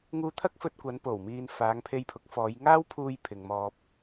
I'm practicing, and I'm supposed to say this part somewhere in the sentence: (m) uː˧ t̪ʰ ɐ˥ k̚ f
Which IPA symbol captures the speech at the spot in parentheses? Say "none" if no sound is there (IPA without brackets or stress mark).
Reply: ŋ